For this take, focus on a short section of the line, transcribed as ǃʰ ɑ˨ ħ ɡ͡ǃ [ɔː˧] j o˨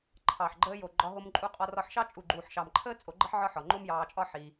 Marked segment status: incorrect: əː˧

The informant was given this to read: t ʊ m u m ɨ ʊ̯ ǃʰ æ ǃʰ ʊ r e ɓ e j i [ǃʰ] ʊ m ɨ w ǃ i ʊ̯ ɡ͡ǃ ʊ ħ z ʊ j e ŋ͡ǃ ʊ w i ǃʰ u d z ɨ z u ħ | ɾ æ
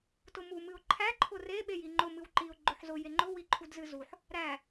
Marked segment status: incorrect: ŋ͡ǃ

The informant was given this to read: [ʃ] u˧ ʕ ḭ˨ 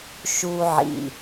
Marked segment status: correct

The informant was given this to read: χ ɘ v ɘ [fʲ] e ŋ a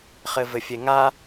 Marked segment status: correct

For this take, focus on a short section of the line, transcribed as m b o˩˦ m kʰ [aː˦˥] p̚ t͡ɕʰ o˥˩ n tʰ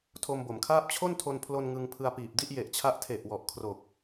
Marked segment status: incorrect: aː˥˩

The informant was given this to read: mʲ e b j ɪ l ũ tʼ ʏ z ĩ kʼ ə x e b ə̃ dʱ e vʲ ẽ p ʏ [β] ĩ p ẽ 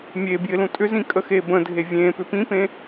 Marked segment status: incorrect: p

